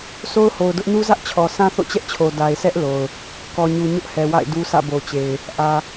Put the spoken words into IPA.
so˦ʊ̯ho˨ʊ̯dʊ˦ʔ nu˦zä˦ʔt͡ɕʰɔ˨ sʰã˦θo̰˦˨t͡ɕɛ˦ʔt͡ɕʰo˨ da˨ɪ̯sʰɛ˦ʔ lo˨ʊ̯ | kɔ˨ɲu˨ ɲʊ˦ʔhɛ˨wa̰˦˨ɪ̯du˦ sä̰˦˨bo˨t͡ɕe˨ɪ̯ | ʔä˨

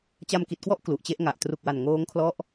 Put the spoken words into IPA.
t͡ɕa˧mki˨˩t̚kwɔ˥˩ʔ klu˨˩ʔt͡ɕe˥˩ʔŋa˨˩ʔ tru˨˩k̚wa˨˩n ŋoː˦˥ŋkʰlɔ˦˥ʔ

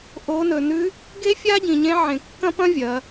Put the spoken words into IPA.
ʔo˩˧nɵ˩nʉ˧˥ | ɡe˥fʲa˥ɟĩ˩ɲẽ˧˥ ʕẽ˩kːɐ̃˥pɐ̃˥ vʲɐ˩˧

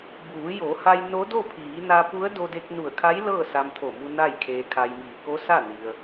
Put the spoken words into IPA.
buː˩˧jo˩˧ha˧j no˧˥do˥˨ pʰiː˩˧na˧pu˧˥ə̯ do˧de˧k̚nu˧˩ə̯kʰa˧˥j lɤː˥˨sa˧mt̪ʰo˧˩mu˧ na˥˨jkʰeː˧ kʰa˧jmiː˧˩ ko˧˥sa˥˨ ni˧ə̯

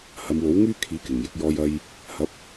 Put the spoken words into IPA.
hɐ˨˧mwo˨˥wŋyː˥kʰiː˨˥ kɪ˨˩ŋjɪ˧k̚ jɔː˥jɐ˥j | hɐ˨˥p̚

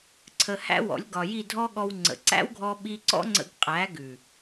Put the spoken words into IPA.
ǀʰə˧hæ̰˦wɔ̰˨˦lʲ ɡɒ˨ji˦˨dʱɔ˦ɠɔ˧w ŋ͡ǀə̰˨ǀæ̰˦wɡʱɔ˧ɓi˧ ǀɔ̰˦ŋ͡ǀə̰˧ɡqʼæ˨˦ ɡʉ˨

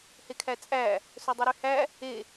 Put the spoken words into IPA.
hekʰæt͡sʼæ | sɵdˤiɾyhæ | e

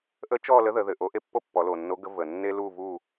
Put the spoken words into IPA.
ʔə˥ t͡ʃɔ˥˧lə˧˥ðə˩˧ ðɘ˨˩ʔo˧˥ʔe˥ pːo˥pːɔ˩˧lo˨˩nːo˧˥ ɡə˧˥və˨˩ nːe˥lu˥˧vu˥˧

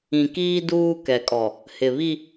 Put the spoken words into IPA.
ĩ˨kiː˦ duː˦kɛ˨kʼɔ˨ | hɪ˨ βi˦

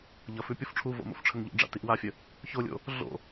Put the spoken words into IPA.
ʎʌfʉ pʲofʈ͡ʂʰuvo̰ mo̰fʈ͡ʂʰəŋʎo̰ɖ͡ʐa̰ tiʔwafʲə | çolʲo̰ | ɮo̰

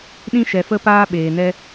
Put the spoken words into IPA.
ɗĩ˧ʃɛ˨ fə˧paː˧ ɓeː˨nɛ˧

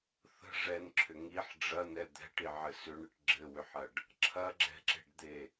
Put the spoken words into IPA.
θə̤ ʐɛnǁʰʏ ŋiħ ɖ͡ʐɐnɛ d̪ɛ̤ʈiʕɘ sʏɳɨʈ ɡ͡ǁɘwʏħɐɖ | ǁʰɐɡ͡ǁɛ̤ǁe̤ɖd̪e

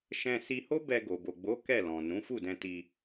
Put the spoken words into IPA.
ʃɛ̃˧si˧ho˦ bɛ˧ɡo˨ bo˨ɡ͡bo˨˦ kɛ˦˨lɔ̃˨ nũ˨˦fu˦˨dɛ̃˧ti˧

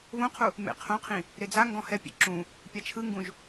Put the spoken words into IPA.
βõqʰu | mḛqʰõqʰĩ | ɾed͡zaŋɡɔ̃ hɛpʲḛ ǁũ | pʲat͡ʃʰɯŋɡũʒ

